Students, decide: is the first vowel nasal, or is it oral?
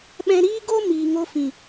nasal